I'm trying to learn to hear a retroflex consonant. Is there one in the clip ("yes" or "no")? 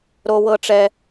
yes